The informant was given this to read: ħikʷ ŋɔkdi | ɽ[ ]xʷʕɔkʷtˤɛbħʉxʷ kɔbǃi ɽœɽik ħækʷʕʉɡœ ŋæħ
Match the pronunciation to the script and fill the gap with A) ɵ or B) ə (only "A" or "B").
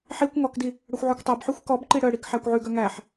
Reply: A